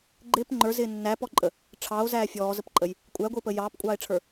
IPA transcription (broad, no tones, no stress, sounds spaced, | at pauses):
ɡ͡ǃ ɪː p ŋ͡ǃ ə˞ z ɪː nː æ p ɔ ǃʼ ə | ʈ͡ʂʰ ɑ o̯ z æː fʲ ɔː z ə p ǃʼ ə j | kʷʼ æ ɡʷ ɪː p ə j ɑː p kʷʼ ɑː e̯ ʈ͡ʂʰ ə˞